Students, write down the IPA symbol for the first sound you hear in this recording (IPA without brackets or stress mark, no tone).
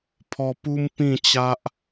pʰ